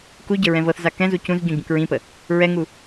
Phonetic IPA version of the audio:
k u ɟ ə ɹ ɛ̃ v ɤ θ z a k ɛ̃ z u c ũ z ɟ ũ ɟ ũ k ɹ ĩ p ə | ɹ ɛ ŋ u

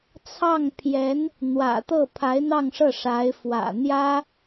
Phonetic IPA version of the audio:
t͡sʰ ɑ˥˩ ŋ pʰ j ɛ˧˥ n | n̪ w ä̰˨˩ t̪ ɤ˥˩ pʰ a˧˥ ɪ̯ n̪ ɑ˥˧ ŋ ʂ ɤ˥˩ ʂ a˧˥ ɪ̯ f w ä̰˨˩ n̪ j ä˥

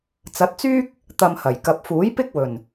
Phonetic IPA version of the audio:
t͡s ɐ˨˥ t̚ t͡s yː˥ k̚ | t̪ ɐ˧ m h ɐ˨˩ j k ɐ˨ p̚ f uː˨˥ j p ɪ˥ k̚ w ɵ˨˩ n

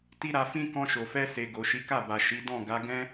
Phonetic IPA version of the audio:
t i˦ ɾ a˧ f ĩ˦ k ɔ̃˧ ʃ o˨ f ɛ˧ s e˨ ɡ o˨ ʃ i˨˦ k a˦˨ b a˨ ʃ i˨˦ d ɔ̃˦˨ ɡ a˨˦ ɡ ɛ̃˦

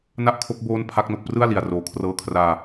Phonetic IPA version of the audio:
n a˥˩ ʔ kʰ o˦˥ k̚ b oː˦˥ n pʰ a˦˥ k̚ n o˨˩ k̚ p r ɯ˥˩ a̯ l i˨˩ a̯ r oː˨˩ kʰ r ɤː˧ kʰ r aː˧

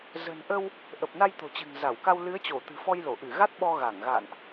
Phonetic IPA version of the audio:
z ə̤˨˩ n ʔ ə˧ w | ʔ ə˨˩ p̚ n a˧ j t̪ o̤˨˩ t͡ɕ ɨ̤˨˩ ŋ z a˧˩ w k a˧ w l ɨ˨˦ ə̯ t͡ɕ o˧˩ t̪ ɨ̤˨˩ f ɔ˧ j l o˧˩ ʔ ɨ˧˩ ɣ a˦˥ t̚ ɓ ɔ˧ ɣ a˧˩ ŋ ɣ a̰ː˧˨ n ʔ

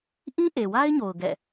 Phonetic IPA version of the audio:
ʔ ĩ˦ ʔ e˨ w a˦ ɪ̯ ɲ o˨ ʊ̯ ɡ ɛ̰˦˨

